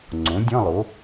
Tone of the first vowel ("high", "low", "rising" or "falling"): rising